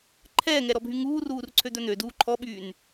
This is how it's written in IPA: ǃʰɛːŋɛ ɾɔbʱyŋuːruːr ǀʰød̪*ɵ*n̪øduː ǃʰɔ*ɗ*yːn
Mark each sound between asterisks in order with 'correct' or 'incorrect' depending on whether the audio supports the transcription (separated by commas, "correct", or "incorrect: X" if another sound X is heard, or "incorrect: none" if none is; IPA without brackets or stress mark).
incorrect: œ, incorrect: ɓ